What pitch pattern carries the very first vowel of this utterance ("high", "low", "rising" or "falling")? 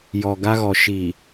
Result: low